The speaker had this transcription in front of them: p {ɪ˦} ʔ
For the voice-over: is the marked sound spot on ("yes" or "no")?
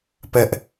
no